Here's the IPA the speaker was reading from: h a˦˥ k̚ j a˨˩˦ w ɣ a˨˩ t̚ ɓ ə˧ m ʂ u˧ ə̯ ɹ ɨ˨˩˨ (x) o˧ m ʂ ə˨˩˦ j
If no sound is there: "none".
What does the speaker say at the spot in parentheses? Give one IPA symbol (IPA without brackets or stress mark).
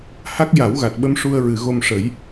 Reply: ɣ